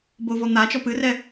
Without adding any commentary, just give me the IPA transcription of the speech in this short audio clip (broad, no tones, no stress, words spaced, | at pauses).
bovɔn̪at͡ʃɔ pɨrɛ